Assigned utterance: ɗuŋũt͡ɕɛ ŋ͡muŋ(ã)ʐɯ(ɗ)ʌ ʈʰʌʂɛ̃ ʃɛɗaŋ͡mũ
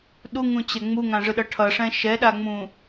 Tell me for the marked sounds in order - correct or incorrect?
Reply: correct, correct

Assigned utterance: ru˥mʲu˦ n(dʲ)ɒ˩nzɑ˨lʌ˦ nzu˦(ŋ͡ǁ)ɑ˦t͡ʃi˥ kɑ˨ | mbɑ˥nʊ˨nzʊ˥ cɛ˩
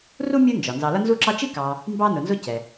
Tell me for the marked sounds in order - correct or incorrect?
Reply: incorrect: d͡ʒ, incorrect: ǁ

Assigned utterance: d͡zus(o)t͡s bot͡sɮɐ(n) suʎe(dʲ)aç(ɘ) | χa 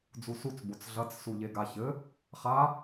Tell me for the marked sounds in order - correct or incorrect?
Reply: incorrect: u, incorrect: t͡s, incorrect: ɡ, correct

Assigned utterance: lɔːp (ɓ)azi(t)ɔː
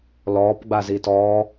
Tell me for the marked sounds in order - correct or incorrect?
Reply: incorrect: ɡ͡b, correct

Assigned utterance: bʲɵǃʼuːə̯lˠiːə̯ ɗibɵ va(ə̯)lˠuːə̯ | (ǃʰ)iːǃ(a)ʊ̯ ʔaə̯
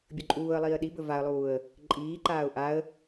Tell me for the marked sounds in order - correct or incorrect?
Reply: correct, incorrect: ǃʼ, incorrect: aː

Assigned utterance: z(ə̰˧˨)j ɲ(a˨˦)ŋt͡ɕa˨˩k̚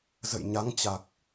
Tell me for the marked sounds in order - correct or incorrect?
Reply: correct, correct

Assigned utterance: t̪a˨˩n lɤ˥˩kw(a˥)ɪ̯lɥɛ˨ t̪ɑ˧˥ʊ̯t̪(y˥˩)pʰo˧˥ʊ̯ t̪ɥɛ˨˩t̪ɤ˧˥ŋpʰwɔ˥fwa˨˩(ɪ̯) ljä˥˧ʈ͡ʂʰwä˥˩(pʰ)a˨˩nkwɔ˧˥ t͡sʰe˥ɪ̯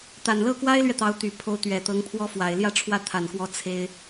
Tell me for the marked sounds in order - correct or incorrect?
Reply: correct, incorrect: y˨˩, correct, incorrect: t̪ʰ

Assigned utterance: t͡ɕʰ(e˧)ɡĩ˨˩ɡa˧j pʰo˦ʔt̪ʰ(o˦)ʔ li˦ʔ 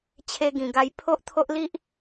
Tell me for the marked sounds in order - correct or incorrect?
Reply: correct, correct

